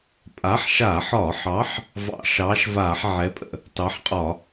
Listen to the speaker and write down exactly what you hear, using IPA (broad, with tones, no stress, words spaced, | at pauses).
pʼa˨˥ħʃa˧˩˧ħɒ˧˩˧ħɑ˨˥ħ | vɑ̰˧˩˧ʃɑː˨˥ʃvaː˧˩˧ħ ʕɛ˨˥pʼə̰˧˩˧ | tɑ˨˥ħqʼɒ˧˩˧